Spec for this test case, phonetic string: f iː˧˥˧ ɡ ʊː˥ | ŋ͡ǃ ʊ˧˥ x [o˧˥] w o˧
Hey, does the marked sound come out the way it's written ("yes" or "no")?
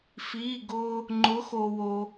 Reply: no